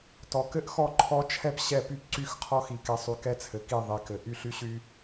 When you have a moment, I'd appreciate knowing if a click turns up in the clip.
yes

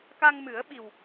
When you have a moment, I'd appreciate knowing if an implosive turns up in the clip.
yes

